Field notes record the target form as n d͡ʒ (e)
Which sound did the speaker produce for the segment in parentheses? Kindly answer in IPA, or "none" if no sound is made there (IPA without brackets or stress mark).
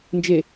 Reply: e